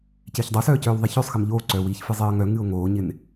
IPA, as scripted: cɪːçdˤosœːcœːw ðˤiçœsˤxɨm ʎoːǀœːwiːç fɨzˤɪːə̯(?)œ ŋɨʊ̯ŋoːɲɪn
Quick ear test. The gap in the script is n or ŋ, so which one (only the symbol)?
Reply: ŋ